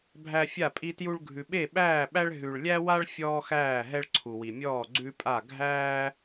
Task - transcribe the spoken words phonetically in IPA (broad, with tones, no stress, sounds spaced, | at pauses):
bʱ æ˥ fʲ a˥˧ pʼ i˥ t j u˥ ɭ ɡʱ ʉ˧ ɓ e˥˧ ɓ æː˥˧ ɓ æ˥ ɭ ɦ ʉ˧ ɭ lʲ æ˥ w a˥ ɭ fʲ ɔː˥ x æː˥˧ ɦ ɛ˥ ɭ ǀʰ u˧ w i˧ mʲ ɔː˥˧ ɡ͡ǀ ʉ˥ pʼ a˥˧ ɡʱ æː˥